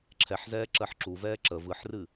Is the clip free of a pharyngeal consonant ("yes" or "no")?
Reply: no